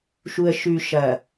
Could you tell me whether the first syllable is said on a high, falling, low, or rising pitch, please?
low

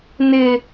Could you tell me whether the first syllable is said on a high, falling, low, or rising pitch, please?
high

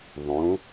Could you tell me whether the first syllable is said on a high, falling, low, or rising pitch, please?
rising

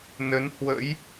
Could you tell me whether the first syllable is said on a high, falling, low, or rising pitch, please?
rising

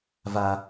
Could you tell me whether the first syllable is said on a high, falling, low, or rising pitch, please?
high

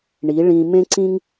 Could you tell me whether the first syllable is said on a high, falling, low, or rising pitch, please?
rising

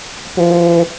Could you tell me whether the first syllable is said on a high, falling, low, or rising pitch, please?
high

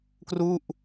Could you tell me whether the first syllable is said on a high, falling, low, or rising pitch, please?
falling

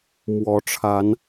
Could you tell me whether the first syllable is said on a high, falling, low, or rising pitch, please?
rising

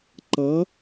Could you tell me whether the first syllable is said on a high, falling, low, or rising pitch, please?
rising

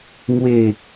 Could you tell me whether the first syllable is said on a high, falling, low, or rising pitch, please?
falling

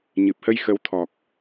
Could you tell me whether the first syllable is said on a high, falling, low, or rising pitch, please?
low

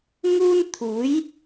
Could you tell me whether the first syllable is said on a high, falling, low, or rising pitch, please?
high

